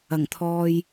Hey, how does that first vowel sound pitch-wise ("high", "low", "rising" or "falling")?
low